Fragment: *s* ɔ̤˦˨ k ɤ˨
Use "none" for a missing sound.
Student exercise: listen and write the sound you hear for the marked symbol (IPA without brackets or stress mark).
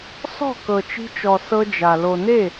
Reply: s